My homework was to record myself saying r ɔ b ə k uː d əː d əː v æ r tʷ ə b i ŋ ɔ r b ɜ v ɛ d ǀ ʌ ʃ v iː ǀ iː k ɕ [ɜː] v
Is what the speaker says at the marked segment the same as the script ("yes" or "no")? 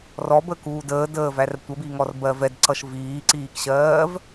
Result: yes